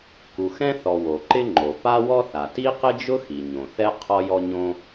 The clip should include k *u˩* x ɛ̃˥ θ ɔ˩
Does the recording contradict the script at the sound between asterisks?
no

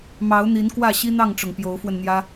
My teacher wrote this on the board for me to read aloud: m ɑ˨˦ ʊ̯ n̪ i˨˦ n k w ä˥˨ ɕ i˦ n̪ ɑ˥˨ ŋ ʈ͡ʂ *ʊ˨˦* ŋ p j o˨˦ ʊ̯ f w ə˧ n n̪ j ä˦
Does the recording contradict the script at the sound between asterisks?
yes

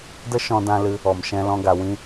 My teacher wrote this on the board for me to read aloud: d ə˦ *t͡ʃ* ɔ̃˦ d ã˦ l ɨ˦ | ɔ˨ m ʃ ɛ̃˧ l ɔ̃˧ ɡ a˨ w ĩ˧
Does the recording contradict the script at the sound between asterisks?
yes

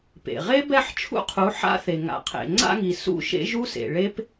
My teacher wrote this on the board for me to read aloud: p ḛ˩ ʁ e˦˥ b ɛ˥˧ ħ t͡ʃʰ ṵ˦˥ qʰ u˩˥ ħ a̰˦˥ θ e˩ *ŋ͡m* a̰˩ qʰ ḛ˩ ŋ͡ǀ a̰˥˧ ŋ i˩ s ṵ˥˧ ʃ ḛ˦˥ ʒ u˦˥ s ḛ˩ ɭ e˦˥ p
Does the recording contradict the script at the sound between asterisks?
yes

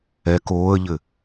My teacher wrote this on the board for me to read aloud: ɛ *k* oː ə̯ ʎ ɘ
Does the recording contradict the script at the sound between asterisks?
no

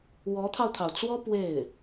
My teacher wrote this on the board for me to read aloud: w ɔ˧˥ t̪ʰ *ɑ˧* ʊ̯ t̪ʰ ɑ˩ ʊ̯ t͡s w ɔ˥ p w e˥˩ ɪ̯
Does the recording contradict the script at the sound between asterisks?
no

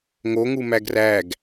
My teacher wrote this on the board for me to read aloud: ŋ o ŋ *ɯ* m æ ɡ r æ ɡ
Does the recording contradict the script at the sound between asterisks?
yes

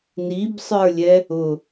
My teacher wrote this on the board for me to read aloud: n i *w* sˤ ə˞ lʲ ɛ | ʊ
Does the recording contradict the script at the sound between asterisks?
yes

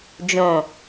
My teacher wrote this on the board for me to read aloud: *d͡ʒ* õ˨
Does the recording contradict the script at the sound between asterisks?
no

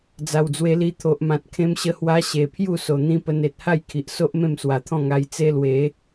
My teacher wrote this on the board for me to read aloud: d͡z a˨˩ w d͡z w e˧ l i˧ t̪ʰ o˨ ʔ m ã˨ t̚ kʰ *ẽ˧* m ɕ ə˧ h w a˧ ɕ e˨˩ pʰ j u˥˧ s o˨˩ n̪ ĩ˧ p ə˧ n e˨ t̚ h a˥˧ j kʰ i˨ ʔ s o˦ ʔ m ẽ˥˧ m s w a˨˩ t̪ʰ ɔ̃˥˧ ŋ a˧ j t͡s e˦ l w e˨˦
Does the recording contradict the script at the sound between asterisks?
no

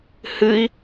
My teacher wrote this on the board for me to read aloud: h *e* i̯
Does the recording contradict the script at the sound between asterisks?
yes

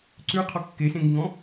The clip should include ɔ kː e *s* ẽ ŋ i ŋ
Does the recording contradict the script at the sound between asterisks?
no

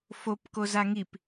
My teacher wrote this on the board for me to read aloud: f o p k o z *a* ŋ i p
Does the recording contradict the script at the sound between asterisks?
no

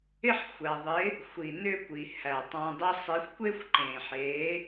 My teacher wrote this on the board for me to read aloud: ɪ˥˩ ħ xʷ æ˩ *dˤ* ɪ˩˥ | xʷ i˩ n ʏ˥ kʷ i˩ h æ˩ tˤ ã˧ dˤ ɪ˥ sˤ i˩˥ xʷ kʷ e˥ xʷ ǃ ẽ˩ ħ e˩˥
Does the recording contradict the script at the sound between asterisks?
yes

